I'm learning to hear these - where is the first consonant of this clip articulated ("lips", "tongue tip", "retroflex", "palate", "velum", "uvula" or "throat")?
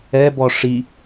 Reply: lips